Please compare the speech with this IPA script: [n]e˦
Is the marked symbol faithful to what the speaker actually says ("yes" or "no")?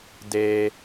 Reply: no